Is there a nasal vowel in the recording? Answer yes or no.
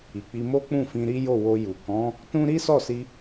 yes